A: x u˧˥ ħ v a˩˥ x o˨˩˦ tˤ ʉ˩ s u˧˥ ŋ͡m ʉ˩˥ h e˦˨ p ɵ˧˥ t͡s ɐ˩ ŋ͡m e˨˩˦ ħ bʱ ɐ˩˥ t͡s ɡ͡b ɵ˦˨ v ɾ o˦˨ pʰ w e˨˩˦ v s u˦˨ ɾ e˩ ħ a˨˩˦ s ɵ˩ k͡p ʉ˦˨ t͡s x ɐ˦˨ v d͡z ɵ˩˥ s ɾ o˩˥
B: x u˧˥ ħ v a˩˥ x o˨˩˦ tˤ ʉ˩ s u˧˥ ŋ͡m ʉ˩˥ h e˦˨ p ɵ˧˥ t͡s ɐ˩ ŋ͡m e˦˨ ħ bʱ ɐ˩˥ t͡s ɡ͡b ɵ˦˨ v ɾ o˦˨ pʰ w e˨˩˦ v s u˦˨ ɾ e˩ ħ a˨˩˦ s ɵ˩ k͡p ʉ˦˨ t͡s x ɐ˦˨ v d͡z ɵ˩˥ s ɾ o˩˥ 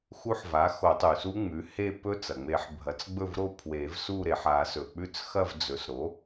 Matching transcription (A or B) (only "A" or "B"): A